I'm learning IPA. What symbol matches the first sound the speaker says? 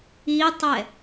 i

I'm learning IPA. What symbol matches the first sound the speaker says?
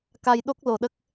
k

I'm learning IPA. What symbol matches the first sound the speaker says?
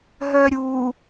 ɦ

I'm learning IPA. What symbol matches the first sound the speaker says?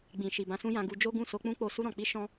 ɡ͡b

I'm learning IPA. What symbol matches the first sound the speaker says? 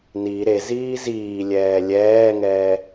n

